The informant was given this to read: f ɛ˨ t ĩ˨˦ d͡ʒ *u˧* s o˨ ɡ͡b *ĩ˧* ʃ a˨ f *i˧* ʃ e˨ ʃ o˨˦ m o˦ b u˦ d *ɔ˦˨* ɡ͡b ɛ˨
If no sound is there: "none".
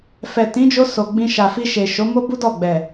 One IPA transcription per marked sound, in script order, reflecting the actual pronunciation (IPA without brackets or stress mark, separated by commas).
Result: o˧, ĩ˧, i˧, ɔ˦˨